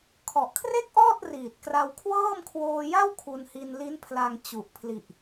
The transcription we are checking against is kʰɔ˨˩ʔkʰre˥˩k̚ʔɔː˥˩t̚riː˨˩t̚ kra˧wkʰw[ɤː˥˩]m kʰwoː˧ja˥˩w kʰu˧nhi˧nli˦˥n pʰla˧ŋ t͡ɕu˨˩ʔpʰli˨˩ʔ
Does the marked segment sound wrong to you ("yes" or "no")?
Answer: no